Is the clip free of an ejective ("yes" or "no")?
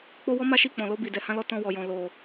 yes